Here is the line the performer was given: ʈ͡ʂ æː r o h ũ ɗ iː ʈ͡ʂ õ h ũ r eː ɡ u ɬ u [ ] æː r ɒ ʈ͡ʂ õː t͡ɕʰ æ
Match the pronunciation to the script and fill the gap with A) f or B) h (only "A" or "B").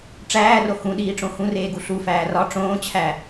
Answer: A